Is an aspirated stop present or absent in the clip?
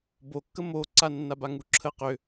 present